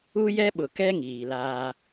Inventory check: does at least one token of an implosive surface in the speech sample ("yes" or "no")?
yes